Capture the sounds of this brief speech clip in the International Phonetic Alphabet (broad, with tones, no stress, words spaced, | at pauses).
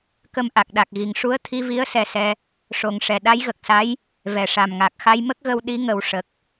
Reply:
kə˧mʔa˨˩k̚ɗa˨˩k̚ɣi˨˩ŋ ʂu˧˥ə̯t̪ʰi˧vi˧˥ə̯ sɛ˧sɛ˧ | ʂo˨˩˦ŋʂɛ˨˩ ɗa˧˥jɣə˨˩k̚sa˧˥j | vɛ˨˩ʂa˨˩mŋa˨˩k̚ xa˧jmə˦˥k̚ɣə˧w ɗi˧˥ŋə˨˩˦w ʂə˨˩k̚